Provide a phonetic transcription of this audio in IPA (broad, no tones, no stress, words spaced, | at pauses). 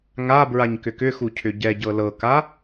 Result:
ŋa bɹaɲkʏkʏxu cʰʏɟɛɟɤ lɤka